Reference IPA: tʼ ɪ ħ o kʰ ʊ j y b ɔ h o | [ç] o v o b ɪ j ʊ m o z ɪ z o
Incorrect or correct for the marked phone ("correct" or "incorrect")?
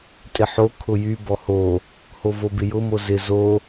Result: incorrect